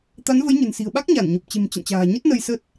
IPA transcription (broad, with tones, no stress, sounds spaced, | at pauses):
t̪ a˨˦ n v ə˨˦ j ɲ ə̤˨˩ n s i̤˨˩ ə̯ ɓ a˦˥ k̚ ɲ a˧˩ n ɲ o˨˩ p̚ t͡ɕ e̤˨˩ m t͡ɕ ə̰˧˨ n t͡ɕ a̤ː˨˩ ɲ ə˦˥ t̚ n ə˧ j s ə˦˥ t̚